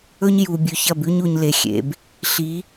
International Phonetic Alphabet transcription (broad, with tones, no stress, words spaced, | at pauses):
ɵ˦ɲ ju˨bʲʉ˨çɐ˦˨b ʉ˦ɲu˨ɲ le˨xʲḛ˨b | ɬi˨˦